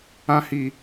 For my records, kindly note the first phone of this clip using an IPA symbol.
ã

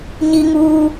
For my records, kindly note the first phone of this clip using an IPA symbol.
ɲ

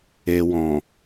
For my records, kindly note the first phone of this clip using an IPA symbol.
e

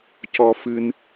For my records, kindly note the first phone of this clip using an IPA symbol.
c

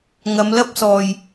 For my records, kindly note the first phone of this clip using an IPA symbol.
ŋ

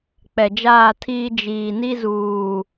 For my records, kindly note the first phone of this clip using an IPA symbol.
k͡p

